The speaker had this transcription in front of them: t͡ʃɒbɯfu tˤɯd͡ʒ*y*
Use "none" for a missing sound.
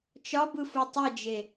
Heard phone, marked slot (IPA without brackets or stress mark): e